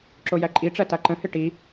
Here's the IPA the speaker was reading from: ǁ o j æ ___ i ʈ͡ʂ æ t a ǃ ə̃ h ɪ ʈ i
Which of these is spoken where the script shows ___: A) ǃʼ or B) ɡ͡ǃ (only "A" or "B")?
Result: A